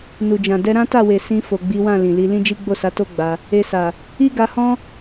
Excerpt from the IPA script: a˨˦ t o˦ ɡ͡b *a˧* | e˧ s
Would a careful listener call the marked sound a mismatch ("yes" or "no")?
no